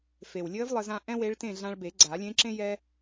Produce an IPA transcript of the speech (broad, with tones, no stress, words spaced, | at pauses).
fe˨˩wlʲɘː˧˥vlˠɘ˧zã˧ ʔɛ̃˥we˧˥ɭtẽ˥˨ ɮã˧ɭbe˨˩˦ ɡ͡ǀa˨˩˦lʲẽ˧˥ǁẽ˥ jɛ˧